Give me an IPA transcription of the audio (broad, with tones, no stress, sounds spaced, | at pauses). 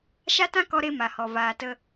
ʃ a˦ t ã˦ k ɔ˧ ɾ e˧ m a˨ h ɔ˨ v aː˨ t ə˧